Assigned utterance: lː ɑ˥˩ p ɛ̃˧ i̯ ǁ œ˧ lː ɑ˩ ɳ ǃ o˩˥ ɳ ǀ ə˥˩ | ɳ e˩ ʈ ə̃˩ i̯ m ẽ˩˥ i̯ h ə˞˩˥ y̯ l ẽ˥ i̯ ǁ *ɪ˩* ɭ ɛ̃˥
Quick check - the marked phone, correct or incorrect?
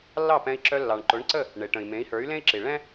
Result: incorrect: i˩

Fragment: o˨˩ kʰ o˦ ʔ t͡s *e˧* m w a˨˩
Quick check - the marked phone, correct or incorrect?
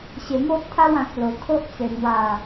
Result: incorrect: e˨˩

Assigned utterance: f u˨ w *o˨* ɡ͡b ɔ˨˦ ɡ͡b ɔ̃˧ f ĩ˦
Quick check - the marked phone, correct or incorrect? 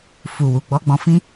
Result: incorrect: u˨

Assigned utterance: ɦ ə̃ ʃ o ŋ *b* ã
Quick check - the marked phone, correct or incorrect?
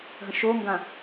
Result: incorrect: ɡ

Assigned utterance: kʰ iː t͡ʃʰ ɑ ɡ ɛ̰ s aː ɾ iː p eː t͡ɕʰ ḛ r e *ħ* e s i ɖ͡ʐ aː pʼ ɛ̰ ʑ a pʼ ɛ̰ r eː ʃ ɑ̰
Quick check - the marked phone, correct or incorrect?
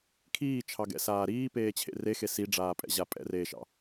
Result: incorrect: x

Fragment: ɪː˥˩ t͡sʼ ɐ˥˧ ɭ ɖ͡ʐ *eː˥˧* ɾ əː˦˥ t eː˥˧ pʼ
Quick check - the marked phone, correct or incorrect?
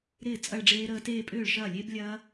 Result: incorrect: eː˦˥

